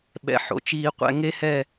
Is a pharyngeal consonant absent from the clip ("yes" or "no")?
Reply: no